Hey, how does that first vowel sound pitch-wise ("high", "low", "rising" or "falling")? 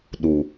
low